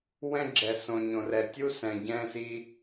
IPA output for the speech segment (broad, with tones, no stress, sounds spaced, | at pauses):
w ɛ̃˦ ɡ͡ǁ ɛ˨ s õ˨ ɲ õ˨ r ɛ˨ tʲ u˦ s ɛ̃˨ ɟ ɛ̃˦ s i˦